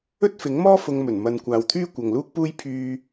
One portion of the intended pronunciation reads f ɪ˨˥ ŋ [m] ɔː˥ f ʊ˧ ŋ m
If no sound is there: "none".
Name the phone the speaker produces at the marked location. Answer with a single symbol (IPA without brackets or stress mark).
m